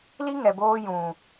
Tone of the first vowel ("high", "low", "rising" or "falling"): high